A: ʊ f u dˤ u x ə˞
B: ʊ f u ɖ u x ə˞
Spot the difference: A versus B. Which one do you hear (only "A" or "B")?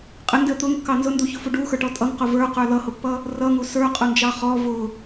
B